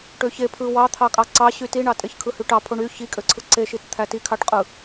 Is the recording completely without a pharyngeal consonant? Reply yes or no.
yes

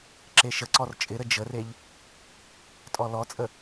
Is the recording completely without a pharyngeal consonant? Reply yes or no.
yes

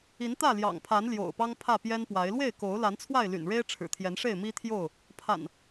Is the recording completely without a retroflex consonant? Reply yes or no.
no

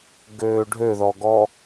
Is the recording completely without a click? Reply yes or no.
yes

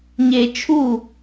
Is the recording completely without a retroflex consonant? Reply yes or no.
yes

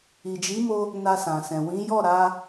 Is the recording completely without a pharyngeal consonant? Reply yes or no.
yes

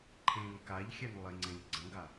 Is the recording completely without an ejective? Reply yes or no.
yes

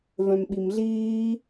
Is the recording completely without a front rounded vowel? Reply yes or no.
no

